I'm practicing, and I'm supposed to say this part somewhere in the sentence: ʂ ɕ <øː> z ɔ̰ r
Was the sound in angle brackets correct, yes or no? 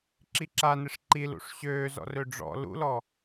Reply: yes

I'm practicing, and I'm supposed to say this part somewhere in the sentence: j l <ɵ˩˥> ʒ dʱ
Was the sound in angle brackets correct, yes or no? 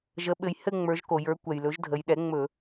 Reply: yes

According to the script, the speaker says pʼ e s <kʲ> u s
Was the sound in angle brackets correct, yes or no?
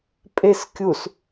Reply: yes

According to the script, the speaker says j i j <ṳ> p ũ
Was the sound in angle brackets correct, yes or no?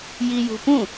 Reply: yes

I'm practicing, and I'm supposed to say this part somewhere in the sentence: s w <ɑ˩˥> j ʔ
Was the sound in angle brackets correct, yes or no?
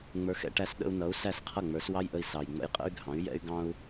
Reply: no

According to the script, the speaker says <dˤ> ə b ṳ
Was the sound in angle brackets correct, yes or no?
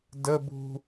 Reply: no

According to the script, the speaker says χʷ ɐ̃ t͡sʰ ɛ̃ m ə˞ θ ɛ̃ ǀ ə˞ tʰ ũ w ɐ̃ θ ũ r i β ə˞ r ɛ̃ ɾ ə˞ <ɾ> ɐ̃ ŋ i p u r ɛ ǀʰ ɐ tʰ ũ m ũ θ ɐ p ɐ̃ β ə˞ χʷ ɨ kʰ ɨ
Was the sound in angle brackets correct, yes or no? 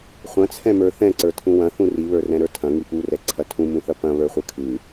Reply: no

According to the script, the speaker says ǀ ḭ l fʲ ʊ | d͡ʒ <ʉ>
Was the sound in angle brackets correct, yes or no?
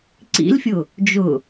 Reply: no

